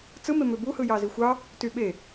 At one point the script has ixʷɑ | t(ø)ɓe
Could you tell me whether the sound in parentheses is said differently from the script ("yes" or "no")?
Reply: yes